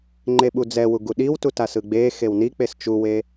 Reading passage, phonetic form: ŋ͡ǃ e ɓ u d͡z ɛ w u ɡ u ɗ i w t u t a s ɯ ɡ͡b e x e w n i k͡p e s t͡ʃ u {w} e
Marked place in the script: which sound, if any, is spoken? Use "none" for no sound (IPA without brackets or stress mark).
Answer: w